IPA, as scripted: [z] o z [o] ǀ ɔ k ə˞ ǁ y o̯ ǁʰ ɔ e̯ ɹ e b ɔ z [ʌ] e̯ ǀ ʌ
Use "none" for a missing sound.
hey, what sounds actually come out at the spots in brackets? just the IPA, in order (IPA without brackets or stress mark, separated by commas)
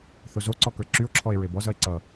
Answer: θ, o, ʌ